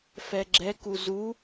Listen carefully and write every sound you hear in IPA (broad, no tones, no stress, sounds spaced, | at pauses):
f ɛ ɡ͡ǁ ɛ k u z u